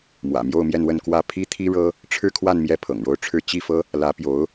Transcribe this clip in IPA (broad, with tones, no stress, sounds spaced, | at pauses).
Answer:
m w ä̰˨˩ m j o˥˧ ʊ̯ m j ɛ˥˧ n w ə˥˧ n k w ä˥˩ pʰ i˥ t̪ʰ i˥ ɻ ɤ˥ | ʈ͡ʂʰ ɻ̩˥˧ kʰ w a˥˧ n m j ɛ˥˩ pʰ ɤ̰˨˩ ŋ ɻ o˥˧ ʊ̯ ʈ͡ʂʰ ɻ̩˥˧ t͡ɕ i˥˩ f ɤ˥ | l ä˧˥ p j o˧˥ ʊ̯